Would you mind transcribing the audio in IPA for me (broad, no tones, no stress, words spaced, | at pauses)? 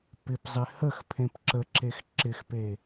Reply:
pɪpzˤɪ həx pʰẽpǁəǁex ǁɪxpe